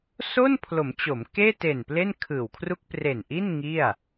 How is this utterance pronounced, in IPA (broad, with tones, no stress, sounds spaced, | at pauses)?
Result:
s o˥˩ n pʰ l o˩˦ m t͡ɕ o˩˦ m k eː˥˩ t e˨˩ n p l e˥˩ n kʰ ɯː˨˩ w kʰ r u˥˩ k̚ p r e˨˩ n ʔ i˥˩ n ŋ i˥˩ a̯